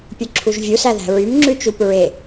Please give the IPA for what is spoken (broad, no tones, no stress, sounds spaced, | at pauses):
pʲ ɵ ǁʰ u ʒ vʲ u s æ ð æ̤ ɹ y m ŋ͡ǁ ʉ t͡ʃ u p ɹ e